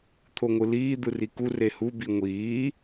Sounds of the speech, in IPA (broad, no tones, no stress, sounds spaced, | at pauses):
t̪ʰ o ŋʷ ɯ l iː d̪ ɯ r i k u r e h u b i ŋʷ iː